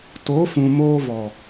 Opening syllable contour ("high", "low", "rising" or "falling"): rising